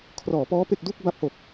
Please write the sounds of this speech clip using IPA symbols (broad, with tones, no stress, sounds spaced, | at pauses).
kʰ r ɔː˩˦ p ɔː˦˥ p e˥˩ k̚ d uː˥˩ k̚ b a˦˥ p̚ h o˨˩ k̚